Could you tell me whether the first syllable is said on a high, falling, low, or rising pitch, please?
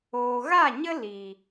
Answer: low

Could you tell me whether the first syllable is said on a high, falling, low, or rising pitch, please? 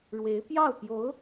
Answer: rising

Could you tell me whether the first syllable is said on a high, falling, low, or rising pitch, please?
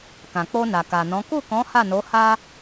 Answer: low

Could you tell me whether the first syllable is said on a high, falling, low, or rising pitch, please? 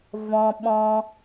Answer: low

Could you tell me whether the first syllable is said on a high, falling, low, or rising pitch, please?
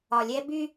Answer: low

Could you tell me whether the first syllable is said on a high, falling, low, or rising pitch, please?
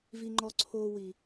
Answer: high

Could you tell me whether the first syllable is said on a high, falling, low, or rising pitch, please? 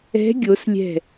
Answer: rising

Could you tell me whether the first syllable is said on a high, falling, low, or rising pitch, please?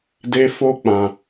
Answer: high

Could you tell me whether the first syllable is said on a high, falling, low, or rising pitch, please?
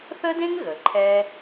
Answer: high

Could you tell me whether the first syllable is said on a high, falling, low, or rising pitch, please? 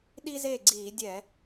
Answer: high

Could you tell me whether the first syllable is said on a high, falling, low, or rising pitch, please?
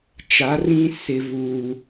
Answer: rising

